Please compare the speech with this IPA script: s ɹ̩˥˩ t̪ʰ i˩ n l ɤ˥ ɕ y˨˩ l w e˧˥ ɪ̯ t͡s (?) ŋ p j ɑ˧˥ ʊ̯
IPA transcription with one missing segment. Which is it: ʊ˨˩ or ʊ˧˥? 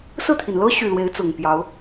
ʊ˨˩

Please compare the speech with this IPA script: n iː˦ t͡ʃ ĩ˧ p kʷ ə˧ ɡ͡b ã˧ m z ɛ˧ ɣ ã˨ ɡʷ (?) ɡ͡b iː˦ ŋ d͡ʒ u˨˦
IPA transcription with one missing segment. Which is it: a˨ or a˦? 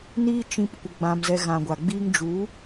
a˨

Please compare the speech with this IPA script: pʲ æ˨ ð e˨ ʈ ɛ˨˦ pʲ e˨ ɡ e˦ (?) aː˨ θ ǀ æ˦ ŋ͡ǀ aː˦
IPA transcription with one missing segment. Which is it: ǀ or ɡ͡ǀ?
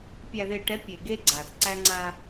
ɡ͡ǀ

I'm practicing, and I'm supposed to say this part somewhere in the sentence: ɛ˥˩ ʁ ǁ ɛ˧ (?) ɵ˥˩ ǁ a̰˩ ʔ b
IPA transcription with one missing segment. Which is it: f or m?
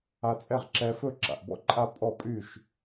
f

